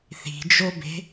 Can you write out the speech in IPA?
θ i̤ d͡ʒ o b e̤

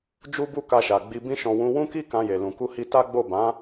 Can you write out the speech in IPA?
d͡ʒ u˦ b u˦ k a˧ ʃ a˨ ɡ͡b i˧ b ĩ˧ ʃ ɔ̃˨ w ũ˧ w ũ˦ k i˦ k ã˧ j e˨ l ũ˨ k u˧ h i˧ t a˦ ɡ͡b o˦˨ b ã˨˦

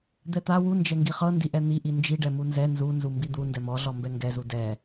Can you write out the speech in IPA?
d̪ ɛ t̪ a w u n d͡ʒ ɛ ŋ ɡ i χ ɤ n d i ʔ ɛ n̪ i ʔ i n d͡ʒ i ɖ ɛ m u n z ɛ n z u n z u m b i d̪ u n d ɛ m ɔ ɮ ɔ m b ɛ ŋ ɡ ɛ z u d ɛ

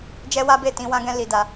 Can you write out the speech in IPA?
d͡ʒ ɛ˦ w a˦ b e˦˨ t ĩ˧ w ã˦ ɡ ɛ̃˦ l i˧ d a˧

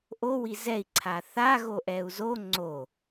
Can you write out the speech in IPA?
ʔ o w i z ɛ i̯ ǀʰ a θ a ɣ o ʔ ɛ u̯ z o ŋ͡ǀ o

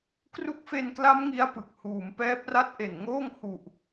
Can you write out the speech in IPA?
k r u˦˥ k̚ f e˧ n k l a˦˥ m ŋ i˦˥ a̯ p ɯ˨˩ k̚ h uː˩˦ m p ɛː˦˥ p̚ r a˥˩ t̚ ʔ e˨˩ n ŋ oː˥˩ ŋ h u˨˩ ʔ

